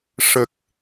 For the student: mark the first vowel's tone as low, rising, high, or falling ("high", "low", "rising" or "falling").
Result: low